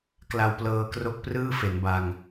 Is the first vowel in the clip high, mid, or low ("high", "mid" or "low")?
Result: low